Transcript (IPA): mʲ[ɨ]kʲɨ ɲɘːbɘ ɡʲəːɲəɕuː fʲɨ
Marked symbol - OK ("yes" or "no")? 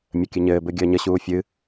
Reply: no